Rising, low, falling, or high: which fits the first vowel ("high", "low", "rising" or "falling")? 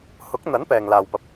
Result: rising